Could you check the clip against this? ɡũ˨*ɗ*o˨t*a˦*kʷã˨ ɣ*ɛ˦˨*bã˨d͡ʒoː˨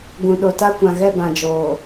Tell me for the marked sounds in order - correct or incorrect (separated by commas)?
correct, correct, correct